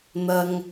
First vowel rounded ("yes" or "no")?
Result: no